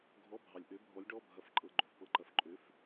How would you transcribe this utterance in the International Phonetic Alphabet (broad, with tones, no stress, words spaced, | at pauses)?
ɡʱɔ˧˥˧bʱɑ˨lʲʔø˧˥bʱɔ˧˥lʲ ɖɔ˧˥˧bʱɐ˧˥˧f ǃʼɤ˧˥˧ɡ͡ǃo˧˥˧fpɤ˧˥˧ǃɐ˧˥˧f ǃʼø˧˥˧f